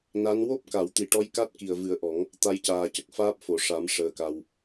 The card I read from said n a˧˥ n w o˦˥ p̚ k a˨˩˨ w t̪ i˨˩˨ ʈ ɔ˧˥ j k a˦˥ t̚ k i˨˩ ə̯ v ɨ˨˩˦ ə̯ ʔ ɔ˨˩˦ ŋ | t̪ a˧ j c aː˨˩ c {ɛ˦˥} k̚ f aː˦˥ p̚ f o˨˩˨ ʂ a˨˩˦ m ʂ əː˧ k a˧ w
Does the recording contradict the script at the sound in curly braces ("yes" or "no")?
yes